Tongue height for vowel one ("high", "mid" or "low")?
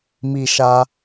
high